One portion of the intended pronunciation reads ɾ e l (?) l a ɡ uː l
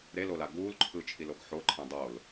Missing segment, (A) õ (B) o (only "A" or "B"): B